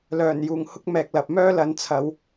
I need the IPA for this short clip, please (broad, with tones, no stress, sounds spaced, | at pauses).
l œː˨˩ n j uː˨˩ ŋ h ʊ˧ k̚ m ɛː˨ k̚ l ɐ˨ p̚ m œː˥ l ɐ˨˧ n t͡sʰ ɐ˨˧ w